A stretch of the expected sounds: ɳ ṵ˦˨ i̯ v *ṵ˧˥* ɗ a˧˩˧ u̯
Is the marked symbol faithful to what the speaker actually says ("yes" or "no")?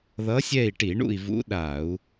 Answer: yes